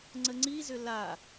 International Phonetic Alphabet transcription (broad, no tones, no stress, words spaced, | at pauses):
ŋ͡ǀəŋ͡ǀizʏ la